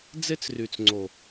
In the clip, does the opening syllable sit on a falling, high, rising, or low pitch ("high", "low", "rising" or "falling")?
high